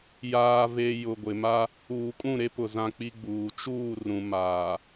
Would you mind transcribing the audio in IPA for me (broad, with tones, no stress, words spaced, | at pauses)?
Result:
jaː˨ve˨ jʊ˨ɡʷɪ˨ma˦ | uː˨kʼũ˦˨ɾe˦ pʊ˨zã˦ k͡pi˦ɡ͡buː˨ t͡ʃuː˦˨ rũ˨ maː˨